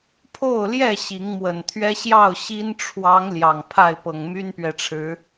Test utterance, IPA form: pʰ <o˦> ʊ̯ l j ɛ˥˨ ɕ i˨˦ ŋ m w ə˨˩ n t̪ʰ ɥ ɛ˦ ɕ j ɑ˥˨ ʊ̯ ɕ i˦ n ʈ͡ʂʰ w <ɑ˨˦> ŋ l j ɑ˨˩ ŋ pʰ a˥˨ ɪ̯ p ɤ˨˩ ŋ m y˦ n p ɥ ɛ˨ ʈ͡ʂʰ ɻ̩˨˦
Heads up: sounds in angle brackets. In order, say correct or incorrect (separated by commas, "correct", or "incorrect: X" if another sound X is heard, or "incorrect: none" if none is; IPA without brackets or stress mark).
incorrect: o˥˨, correct